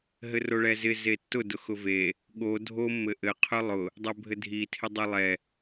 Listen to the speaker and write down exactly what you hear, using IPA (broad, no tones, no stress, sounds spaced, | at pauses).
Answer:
ɦ ɘ r o ɭ ɛ z ɪ z e tː ʊ d ʊ x ʊ v e | ɠ o dʱ o mː ɘ ʔ ɘ qʰ ʊ lˠ ʊ | dˤ ɛ bʱ ɘ dʱ i tʰ ɪ dˤ ɛ lˠ ɛ